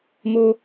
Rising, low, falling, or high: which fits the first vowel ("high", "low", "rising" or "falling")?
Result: high